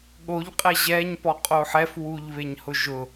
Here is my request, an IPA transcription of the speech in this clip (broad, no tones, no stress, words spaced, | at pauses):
ɠoʎqʼɛ ʑɛɲpɔqʼo ħɛfwuʎβeɲhʊ ʒʊ